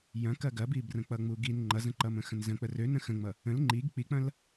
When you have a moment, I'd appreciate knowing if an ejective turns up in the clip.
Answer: no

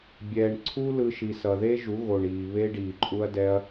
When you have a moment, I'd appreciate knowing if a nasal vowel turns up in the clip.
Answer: no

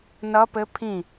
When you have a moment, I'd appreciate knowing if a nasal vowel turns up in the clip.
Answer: yes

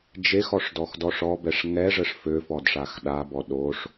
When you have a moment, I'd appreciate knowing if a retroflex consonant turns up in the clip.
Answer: yes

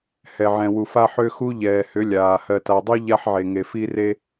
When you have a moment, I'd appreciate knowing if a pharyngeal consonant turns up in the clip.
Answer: yes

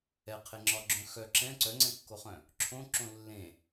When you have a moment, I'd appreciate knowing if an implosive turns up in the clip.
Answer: no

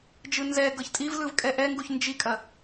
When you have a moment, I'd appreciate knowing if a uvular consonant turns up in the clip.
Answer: no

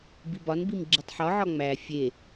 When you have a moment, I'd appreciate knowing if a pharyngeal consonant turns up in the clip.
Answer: yes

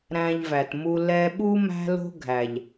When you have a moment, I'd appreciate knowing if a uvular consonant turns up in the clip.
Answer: no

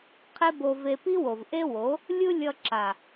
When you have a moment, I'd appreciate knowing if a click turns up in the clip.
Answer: yes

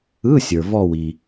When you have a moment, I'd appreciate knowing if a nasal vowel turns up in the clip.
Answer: no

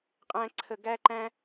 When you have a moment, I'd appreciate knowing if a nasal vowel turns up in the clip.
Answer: yes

